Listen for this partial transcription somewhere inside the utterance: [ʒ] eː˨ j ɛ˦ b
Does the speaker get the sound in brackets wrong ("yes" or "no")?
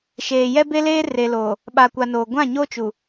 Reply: yes